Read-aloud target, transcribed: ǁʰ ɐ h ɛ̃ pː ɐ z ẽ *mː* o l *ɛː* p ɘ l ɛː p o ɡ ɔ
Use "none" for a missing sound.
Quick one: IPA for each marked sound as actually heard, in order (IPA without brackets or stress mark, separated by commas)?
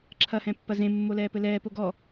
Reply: mː, ɛː